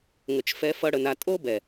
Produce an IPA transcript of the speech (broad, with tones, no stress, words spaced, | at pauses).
ŋə˨t͡ʃfɛ˧ fʌ˧ ɽə˨na˧ tʼo˦bɛ˨